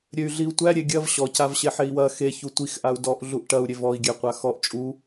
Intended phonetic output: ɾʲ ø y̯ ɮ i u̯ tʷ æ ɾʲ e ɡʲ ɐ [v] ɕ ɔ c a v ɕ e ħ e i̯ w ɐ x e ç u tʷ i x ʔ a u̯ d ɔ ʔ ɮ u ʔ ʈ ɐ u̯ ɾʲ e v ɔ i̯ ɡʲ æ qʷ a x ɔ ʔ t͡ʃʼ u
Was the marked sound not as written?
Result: no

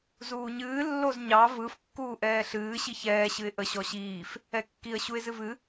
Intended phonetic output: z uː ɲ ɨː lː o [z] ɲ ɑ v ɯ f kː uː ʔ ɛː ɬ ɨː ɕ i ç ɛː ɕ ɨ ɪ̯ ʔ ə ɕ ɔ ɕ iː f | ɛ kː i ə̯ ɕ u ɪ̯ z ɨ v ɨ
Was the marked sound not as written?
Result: no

